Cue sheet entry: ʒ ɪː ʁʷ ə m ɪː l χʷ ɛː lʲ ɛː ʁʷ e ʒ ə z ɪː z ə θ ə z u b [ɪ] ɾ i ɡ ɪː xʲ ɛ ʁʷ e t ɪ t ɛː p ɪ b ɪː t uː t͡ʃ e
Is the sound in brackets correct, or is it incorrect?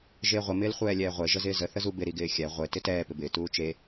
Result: correct